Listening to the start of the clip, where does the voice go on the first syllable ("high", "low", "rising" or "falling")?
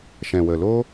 low